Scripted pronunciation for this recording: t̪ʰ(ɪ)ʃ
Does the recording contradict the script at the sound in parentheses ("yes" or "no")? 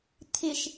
no